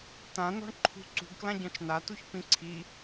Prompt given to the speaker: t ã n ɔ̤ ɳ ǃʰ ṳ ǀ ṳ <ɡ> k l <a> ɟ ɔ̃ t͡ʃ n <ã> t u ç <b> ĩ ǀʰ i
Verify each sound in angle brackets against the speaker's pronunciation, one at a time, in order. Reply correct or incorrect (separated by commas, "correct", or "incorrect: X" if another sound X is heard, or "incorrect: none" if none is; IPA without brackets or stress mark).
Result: correct, incorrect: ã, incorrect: a, incorrect: p